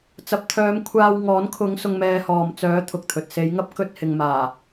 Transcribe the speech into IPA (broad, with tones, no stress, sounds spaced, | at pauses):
t͡s ɐ˨ p̚ t̪ʰ œː˨˧ m kʷʰ aː˧ w ŋ ɔː˨˥ n kʰ ʊ˨˧ ŋ s ʊ˧ ŋ m ɛː˧ h ɔː˨ m t͡s œː˨˥ t̪ʰ ʊ˨ k̚ t̪ʰ ɵ˨ t̚ s e˨˧ j ŋ ɐ˥ p̚ k ɵ˧ t̚ h ɪ˨ ŋ m aː˨˩